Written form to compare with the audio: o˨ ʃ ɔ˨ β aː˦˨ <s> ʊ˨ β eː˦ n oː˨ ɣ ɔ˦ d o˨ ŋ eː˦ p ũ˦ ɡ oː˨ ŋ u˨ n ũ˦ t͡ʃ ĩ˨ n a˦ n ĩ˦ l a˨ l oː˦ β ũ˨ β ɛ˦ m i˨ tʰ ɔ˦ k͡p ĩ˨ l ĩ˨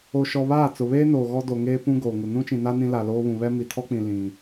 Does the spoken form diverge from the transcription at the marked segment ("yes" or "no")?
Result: yes